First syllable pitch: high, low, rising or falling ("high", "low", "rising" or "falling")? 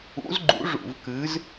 rising